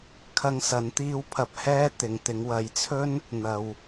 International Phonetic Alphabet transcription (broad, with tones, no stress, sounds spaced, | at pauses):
kʰ ɐ˧ ŋ s ɐ˨˥ n t̪ iː˧ w pʰ ɐ˨ p̚ h ɛː˧ t̪ ɪ˨ ŋ t̪ ɪ˨˧ ŋ w ɐ˨˥ j t͡sʰ ɵ˥ n | n̪ ɐ˨ w